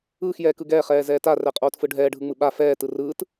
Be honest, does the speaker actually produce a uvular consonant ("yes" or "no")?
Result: yes